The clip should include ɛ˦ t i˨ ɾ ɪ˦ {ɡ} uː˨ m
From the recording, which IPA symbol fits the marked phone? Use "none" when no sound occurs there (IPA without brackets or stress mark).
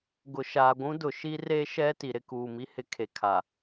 k